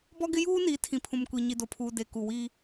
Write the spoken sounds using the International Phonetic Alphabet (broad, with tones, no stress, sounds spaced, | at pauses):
b ɔ˦ ɡ ɪ˦ j uː˦ n i˨˦ tʰ ĩ˨ pʰ ũ˨ m kʷ i˨ ɲ i˨ d o˨ pʰ uː˨ d e˨ k u˨ w iː˦